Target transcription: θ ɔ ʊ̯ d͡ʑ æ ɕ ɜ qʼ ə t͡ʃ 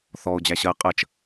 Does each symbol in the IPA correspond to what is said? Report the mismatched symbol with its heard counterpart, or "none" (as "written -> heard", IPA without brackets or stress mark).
none